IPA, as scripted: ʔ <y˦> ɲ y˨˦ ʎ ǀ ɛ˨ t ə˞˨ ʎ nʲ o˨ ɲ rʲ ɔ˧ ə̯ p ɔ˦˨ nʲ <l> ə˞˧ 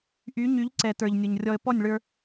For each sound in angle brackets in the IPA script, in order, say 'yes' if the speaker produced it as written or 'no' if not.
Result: no, no

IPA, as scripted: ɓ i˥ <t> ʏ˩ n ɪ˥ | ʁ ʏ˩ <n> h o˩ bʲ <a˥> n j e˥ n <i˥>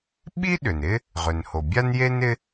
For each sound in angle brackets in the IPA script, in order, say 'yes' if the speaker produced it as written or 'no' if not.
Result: no, yes, yes, no

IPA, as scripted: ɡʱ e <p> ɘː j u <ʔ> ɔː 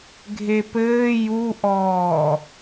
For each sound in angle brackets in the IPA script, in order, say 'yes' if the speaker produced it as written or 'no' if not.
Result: yes, yes

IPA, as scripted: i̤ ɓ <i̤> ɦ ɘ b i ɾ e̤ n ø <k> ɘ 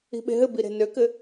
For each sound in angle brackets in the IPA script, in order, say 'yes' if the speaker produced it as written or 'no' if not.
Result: no, yes

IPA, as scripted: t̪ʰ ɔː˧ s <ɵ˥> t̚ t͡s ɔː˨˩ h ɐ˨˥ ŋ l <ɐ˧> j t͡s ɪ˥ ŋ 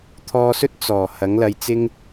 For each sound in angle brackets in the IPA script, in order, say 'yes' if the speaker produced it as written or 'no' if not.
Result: yes, yes

